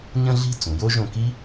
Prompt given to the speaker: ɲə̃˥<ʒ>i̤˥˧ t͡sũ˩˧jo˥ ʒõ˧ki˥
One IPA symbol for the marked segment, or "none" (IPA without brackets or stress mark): ɮ